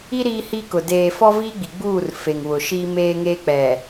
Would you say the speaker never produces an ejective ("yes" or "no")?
yes